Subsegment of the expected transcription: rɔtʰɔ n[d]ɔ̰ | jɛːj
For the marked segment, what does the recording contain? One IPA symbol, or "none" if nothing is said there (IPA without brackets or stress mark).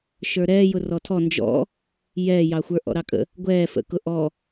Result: d͡ʒ